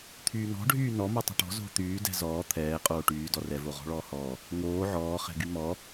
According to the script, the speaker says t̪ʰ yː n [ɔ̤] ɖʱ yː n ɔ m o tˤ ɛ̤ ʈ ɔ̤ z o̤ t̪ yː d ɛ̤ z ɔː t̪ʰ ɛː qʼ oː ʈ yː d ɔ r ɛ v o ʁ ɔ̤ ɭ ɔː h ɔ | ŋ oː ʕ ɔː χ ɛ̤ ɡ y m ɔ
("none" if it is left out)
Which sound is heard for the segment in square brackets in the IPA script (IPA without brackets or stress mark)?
ɔ̤